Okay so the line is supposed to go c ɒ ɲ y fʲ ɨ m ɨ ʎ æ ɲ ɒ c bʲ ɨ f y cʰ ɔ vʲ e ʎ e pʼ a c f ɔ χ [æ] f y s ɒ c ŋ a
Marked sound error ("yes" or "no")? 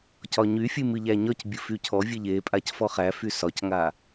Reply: no